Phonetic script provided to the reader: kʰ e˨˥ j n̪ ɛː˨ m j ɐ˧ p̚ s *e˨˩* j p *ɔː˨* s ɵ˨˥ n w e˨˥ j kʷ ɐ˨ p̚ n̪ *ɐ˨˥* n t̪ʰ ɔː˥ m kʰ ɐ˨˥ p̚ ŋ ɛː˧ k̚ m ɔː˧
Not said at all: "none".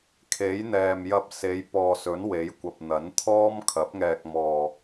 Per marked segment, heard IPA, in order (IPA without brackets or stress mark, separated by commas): e˨˧, ɔː˨, ɐ˨˥